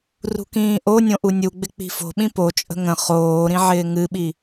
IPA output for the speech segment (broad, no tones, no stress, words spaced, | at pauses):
rṳkĩːʔonʲõ ʔunʲuɡ͡bɪ k͡pi̤fo̤ɓĩ pot͡ʃʼə̤ ŋə̃ χoːɾĩ ʕɪːŋɨɓi